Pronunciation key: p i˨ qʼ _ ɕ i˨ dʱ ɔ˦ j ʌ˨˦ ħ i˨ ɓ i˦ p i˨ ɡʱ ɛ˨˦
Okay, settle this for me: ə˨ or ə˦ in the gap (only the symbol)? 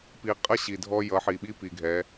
ə˦